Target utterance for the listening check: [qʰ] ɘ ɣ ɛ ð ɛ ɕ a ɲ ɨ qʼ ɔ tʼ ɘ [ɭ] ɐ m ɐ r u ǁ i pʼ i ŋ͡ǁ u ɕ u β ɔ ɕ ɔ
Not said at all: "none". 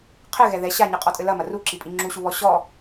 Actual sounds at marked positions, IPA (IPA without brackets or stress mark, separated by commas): qʰ, l